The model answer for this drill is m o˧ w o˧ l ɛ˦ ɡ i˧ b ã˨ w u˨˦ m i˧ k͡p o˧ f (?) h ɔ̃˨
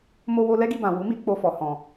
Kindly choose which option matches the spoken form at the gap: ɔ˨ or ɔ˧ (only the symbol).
ɔ˨